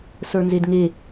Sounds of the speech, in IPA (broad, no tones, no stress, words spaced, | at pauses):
sə˞nzedŋe